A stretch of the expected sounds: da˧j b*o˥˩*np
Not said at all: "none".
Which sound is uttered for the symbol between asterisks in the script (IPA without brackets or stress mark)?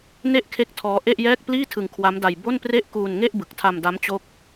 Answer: o˥˩